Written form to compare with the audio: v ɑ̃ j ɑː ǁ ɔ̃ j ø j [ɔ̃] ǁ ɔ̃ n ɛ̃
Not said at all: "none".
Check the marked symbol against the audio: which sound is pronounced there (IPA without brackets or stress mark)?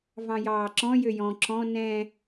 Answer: ɔ̃